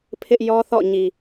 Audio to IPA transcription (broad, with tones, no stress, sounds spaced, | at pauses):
pʰ ɪ˦ ʔ j ɔ˦ θ ɔ̰˦˨ ɲ i˨